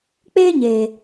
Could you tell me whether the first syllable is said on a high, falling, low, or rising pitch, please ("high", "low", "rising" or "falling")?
high